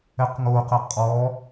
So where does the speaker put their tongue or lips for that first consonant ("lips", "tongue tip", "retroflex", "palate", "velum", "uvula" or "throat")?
uvula